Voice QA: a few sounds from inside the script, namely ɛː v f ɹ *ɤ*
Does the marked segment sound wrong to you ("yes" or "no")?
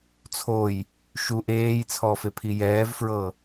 no